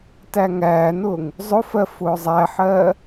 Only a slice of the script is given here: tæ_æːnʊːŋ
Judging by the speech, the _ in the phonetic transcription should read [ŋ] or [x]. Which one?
ŋ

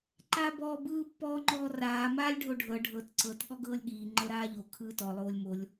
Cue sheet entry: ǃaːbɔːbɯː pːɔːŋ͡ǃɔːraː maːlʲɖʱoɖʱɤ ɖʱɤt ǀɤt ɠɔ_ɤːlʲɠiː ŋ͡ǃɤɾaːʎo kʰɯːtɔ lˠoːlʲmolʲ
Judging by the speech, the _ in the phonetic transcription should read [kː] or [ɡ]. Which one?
ɡ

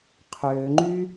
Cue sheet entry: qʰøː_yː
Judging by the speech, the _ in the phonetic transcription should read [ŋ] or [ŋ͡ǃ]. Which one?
ŋ͡ǃ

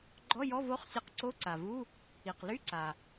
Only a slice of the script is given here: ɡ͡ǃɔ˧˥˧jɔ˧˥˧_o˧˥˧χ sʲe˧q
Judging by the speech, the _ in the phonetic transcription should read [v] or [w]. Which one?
v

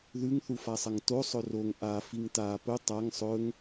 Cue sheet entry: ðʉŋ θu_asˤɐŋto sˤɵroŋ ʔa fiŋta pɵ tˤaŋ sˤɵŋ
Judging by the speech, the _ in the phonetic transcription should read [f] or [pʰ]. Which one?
f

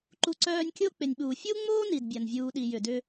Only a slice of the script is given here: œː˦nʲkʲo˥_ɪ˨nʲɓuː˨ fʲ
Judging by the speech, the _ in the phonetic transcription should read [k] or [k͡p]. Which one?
k͡p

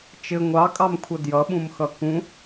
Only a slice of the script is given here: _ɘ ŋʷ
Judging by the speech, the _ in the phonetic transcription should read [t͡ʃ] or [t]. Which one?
t͡ʃ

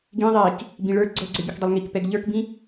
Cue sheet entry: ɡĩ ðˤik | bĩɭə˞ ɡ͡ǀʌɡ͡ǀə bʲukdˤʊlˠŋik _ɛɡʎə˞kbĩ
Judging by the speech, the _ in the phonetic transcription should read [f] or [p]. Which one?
p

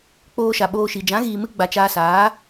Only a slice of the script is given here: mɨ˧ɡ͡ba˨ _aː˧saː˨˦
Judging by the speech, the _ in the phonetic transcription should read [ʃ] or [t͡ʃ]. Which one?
t͡ʃ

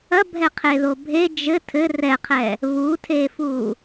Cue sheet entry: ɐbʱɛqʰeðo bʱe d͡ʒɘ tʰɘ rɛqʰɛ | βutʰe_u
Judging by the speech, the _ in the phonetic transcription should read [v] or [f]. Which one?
f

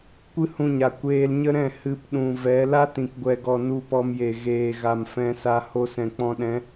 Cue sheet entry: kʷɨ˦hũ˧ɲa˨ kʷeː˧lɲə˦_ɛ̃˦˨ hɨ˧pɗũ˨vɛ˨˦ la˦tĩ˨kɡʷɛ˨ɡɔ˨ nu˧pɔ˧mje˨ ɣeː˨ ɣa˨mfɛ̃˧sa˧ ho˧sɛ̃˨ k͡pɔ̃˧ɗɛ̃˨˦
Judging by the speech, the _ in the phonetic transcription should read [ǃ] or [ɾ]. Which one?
ɾ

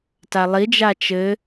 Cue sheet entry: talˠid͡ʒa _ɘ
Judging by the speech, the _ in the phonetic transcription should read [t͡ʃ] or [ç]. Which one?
t͡ʃ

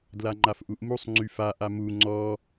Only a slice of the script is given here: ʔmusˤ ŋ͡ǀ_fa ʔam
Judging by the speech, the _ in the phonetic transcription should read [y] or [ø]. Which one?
y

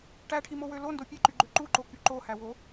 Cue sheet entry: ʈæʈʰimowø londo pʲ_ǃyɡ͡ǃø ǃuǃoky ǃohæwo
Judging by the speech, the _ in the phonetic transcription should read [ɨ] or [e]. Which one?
e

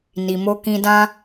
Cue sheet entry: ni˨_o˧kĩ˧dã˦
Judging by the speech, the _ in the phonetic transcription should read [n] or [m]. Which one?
m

